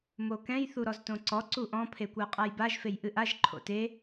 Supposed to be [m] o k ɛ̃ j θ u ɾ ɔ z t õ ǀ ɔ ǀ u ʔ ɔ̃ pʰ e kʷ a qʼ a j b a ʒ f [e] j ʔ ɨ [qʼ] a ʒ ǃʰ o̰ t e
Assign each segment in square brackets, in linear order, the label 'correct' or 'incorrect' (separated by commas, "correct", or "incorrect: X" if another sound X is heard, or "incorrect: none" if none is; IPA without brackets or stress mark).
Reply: correct, correct, incorrect: ʔ